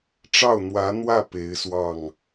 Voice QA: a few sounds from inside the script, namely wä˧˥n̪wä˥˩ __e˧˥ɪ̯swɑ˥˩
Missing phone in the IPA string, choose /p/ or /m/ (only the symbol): p